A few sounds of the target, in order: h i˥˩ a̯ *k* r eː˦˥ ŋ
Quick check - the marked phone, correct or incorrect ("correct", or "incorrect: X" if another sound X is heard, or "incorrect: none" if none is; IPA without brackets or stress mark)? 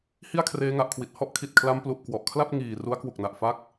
incorrect: kʰ